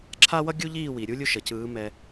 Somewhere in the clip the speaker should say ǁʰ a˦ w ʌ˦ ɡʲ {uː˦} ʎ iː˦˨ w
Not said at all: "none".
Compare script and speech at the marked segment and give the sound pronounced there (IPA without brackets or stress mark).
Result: u˦